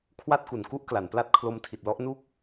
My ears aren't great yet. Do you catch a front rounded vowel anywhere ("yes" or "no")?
no